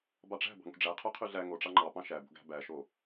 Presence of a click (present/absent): present